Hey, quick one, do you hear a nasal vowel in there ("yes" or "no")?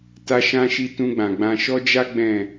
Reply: yes